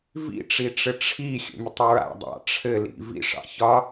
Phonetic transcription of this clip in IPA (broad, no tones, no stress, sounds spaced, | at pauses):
v ḭ ʈ͡ʂ i ʈ͡ʂ ɘ ʈ͡ʂʰ i xʲ ə̰ mʲ ə tˤ ɹ a̰ dˤ ɑ̰ ʈ͡ʂʰ ɘ l ḭ v ḭ ʂ ɑ̰ ç ɒ